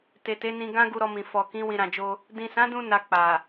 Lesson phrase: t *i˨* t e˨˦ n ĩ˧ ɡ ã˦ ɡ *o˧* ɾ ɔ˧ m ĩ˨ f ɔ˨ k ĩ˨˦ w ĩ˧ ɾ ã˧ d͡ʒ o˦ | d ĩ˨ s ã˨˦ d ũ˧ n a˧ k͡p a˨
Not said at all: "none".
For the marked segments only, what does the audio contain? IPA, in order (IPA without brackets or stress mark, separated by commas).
e˨, u˧